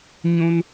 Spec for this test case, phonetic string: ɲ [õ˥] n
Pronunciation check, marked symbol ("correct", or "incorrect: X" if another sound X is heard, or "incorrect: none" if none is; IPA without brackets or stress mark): correct